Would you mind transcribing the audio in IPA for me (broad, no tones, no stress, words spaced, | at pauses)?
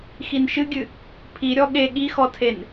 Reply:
xinʃɨɡʲɨ | pʰi ɾʲɔɠe ɠixɔtʰen